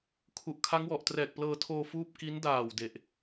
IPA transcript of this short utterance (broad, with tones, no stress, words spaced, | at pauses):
kʰu˨˩ʔkʰa˦˥ŋwɔ˨˩ʔ trɛː˨˩k̚plɤː˧tʰoː˧ fuː˥˩p̚ ki˦˥ndaː˨˩w de˨˩ʔ